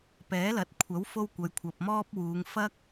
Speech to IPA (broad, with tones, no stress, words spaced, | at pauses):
pɛː˨˥lɐ˨˥t̚kʷʰɐ˨˥w fo˥wkʷɐ˨˧jkʷʰɐ˨p̚ mɔː˥p̚ wuː˨˧ŋfɐ˥k̚